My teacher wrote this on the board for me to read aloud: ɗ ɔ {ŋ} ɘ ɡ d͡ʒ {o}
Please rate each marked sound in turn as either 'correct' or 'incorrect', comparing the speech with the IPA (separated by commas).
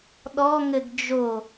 correct, correct